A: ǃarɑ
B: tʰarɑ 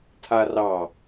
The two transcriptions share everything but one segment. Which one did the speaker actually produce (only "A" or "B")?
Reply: B